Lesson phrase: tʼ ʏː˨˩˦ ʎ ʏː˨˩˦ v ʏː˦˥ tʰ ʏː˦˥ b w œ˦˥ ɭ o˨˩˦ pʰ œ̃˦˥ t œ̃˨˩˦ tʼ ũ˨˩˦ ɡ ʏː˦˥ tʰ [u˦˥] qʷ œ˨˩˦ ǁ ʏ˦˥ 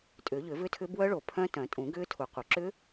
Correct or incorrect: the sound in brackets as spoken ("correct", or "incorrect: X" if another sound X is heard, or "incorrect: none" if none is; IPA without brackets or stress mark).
incorrect: u˨˩˦